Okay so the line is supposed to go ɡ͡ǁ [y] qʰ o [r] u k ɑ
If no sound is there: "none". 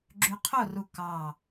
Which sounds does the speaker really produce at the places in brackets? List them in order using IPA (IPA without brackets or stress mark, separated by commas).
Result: y, r